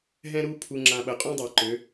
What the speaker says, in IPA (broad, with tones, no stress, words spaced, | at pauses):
ɦɛ̃˦ɾu˦ pʰu˨ŋ͡ǁã˨ ɓə˨ qʼũ˦dˤa˨ ǃø˨˦